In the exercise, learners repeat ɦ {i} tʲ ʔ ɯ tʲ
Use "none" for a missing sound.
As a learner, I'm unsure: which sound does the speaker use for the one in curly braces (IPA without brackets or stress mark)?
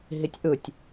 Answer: i